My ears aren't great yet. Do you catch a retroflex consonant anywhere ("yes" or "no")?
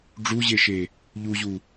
yes